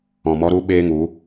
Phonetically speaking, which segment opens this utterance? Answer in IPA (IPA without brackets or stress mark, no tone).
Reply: ɔ̃